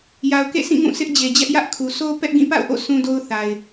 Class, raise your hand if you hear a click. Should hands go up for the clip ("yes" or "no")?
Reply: no